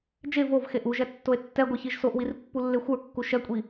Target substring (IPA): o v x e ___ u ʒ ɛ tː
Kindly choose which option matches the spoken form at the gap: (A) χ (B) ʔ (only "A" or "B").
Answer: B